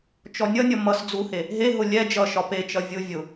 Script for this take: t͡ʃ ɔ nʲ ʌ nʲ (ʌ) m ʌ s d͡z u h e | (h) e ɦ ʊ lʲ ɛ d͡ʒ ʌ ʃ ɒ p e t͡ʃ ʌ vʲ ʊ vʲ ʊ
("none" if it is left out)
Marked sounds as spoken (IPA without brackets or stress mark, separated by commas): ʌ, ɦ